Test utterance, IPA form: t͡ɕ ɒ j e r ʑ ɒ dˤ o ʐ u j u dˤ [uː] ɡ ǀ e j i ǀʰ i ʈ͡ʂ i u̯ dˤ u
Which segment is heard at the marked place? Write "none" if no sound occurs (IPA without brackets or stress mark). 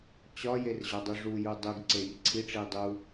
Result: u